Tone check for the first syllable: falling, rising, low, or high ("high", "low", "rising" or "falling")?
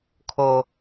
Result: high